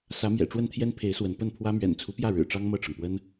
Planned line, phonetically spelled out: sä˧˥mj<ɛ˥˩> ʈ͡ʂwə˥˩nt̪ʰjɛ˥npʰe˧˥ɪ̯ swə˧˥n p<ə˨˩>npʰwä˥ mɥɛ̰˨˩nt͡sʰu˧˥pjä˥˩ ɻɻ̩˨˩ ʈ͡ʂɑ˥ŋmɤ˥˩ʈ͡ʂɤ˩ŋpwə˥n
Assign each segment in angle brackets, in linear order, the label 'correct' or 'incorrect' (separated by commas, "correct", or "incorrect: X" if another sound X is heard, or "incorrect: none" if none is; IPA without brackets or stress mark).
incorrect: ɛ̰˨˩, incorrect: ə˥˩